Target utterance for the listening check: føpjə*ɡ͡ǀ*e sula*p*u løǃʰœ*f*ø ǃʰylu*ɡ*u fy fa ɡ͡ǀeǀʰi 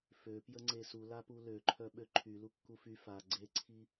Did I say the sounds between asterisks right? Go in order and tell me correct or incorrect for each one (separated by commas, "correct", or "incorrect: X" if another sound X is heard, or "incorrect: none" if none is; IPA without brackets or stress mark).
incorrect: ŋ͡ǀ, correct, incorrect: ɓ, incorrect: kː